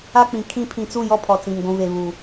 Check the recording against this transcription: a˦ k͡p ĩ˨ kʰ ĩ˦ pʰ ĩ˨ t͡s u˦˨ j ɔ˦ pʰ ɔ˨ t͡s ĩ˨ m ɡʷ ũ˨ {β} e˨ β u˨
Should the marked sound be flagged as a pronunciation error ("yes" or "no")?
no